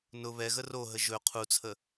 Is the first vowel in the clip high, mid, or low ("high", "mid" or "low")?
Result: high